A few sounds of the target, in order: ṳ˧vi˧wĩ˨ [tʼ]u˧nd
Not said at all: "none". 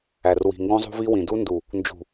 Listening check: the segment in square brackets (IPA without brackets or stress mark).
d